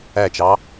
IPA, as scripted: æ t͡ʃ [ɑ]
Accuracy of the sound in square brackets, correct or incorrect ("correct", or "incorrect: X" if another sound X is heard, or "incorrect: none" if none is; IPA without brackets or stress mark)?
correct